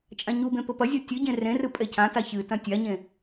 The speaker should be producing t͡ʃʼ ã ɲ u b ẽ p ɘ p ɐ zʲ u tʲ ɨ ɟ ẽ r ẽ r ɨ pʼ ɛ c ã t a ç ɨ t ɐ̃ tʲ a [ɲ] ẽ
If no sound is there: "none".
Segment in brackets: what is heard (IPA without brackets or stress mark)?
ɲ